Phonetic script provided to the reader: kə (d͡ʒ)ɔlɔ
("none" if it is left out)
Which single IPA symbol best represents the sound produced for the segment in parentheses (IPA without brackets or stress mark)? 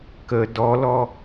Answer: d